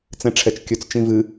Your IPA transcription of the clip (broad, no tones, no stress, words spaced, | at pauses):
t͡sɛ̃ʈ͡ʂʰɛt͡ʃkʲɵt͡s t͡ʃĩvɨ